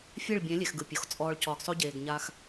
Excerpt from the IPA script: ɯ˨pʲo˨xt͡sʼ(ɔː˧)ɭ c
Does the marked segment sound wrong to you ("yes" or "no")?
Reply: no